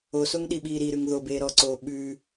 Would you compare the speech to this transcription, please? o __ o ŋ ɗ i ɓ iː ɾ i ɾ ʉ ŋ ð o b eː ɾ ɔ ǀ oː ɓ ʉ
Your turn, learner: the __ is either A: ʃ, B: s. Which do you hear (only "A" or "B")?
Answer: B